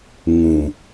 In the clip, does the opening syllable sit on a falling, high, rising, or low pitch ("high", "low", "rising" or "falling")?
low